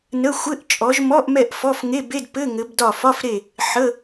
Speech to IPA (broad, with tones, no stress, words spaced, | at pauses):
nə˧˥˧xʷɘ˧˥˧ʔ t͡ʃʼɔ˨˦ʒmɔ˧˥˧ʔmɛ˦˨ʔ fɔ˧˥˧fŋe˧˥˧be˧˥˧d pɘ˧˥˧ŋɘ˨˦b dɒ˦˨ fɒ˧˥˧fɾe˦˨ | ħə˧˥˧